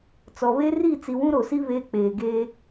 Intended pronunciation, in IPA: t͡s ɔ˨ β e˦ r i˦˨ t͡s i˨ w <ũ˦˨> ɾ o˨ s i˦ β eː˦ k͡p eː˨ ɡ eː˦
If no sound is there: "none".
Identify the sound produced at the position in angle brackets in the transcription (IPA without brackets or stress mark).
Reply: ũ˦